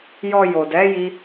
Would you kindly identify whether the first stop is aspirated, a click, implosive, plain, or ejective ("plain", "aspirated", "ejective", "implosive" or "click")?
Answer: plain